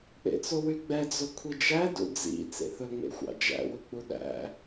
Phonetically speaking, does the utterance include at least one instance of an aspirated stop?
yes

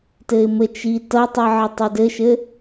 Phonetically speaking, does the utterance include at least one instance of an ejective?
no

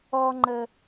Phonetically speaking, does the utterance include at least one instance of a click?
yes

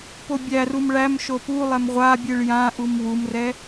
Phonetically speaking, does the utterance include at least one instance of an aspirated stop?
no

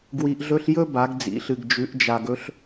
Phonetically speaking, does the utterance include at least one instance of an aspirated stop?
no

